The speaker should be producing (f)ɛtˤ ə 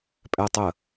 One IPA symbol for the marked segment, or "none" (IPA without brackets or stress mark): pʼ